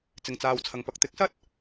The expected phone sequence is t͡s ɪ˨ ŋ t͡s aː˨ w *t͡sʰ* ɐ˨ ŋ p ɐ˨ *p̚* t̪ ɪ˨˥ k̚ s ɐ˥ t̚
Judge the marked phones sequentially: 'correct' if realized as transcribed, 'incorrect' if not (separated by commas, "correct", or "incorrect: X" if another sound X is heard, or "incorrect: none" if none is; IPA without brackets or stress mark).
correct, incorrect: k̚